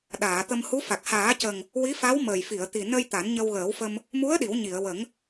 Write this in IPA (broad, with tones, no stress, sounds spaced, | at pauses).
ɗ aː˨˩˨ t̪ ə˧ m h u˧˥ f a˨˩ k̚ h aː˨˩˦ c ə˨˩ ŋ | w i˧˥ f a˧˥ w m əː˨˩ j f i˨˩˨ ə̯ t̪ i˨˩ n ə˧ j t̪ a˨˩˦ n ɲ ə˧ w ɣ əː˨˩˦ w f ə˧ m | m u˧˥ ə̯ ɗ i˨˩˦ w ɲ i˨˩˨ ə̯ w ə˨˩˦ ŋ